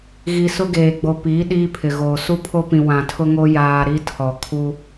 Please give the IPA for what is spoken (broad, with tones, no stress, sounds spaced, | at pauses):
ɣ i˦ s ʊ˦ ɡ eː˨ ɡ͡b o˨ p iː˨˦ ɗ iː˦ pʰ ɪ˨ ɣ oː˨ s u˦ pʰ o˦ p ĩ˨ w ã˨ tʰ ʊ˦ ŋ o˦ j aː˨ ɾ i˦ tʰ ɔ˨ kʰ u˦